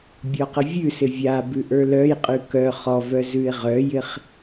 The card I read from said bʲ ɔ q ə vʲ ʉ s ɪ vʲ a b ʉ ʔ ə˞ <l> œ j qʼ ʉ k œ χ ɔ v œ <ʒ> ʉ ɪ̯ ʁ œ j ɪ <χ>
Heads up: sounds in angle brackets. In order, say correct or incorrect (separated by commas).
correct, incorrect, correct